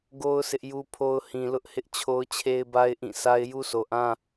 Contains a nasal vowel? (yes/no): yes